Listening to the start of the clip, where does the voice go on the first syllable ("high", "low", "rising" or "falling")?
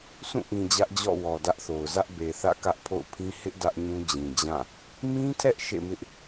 falling